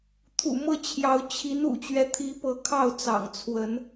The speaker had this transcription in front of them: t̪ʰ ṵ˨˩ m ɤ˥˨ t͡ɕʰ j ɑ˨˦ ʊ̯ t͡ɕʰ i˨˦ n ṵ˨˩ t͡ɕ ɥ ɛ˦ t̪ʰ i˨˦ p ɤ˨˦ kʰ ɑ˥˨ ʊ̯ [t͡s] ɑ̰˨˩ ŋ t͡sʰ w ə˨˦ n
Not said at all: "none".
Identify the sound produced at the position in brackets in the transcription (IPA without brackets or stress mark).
t͡s